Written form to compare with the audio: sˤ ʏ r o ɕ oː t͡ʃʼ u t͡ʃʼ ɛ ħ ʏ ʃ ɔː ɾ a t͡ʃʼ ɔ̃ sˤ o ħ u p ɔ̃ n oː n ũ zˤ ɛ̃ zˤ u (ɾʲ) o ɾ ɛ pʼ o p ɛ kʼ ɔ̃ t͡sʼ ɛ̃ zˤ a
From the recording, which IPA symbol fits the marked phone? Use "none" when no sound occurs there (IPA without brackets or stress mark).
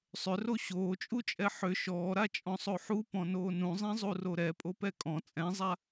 r